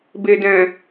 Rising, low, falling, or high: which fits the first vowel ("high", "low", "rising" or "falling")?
low